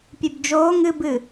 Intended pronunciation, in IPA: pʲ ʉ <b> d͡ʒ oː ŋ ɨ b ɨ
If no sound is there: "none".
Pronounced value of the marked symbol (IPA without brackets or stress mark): b